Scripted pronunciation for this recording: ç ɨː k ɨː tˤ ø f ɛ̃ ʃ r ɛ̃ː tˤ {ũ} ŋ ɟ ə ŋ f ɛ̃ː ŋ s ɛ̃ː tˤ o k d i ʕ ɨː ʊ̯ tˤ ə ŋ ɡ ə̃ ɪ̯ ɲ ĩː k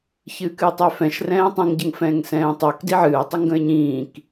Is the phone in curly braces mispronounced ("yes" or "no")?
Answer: yes